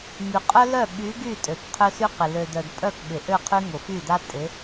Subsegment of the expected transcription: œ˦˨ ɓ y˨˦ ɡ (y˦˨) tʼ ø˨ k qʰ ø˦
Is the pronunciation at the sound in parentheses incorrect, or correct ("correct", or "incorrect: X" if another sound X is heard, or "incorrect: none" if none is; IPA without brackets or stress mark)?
correct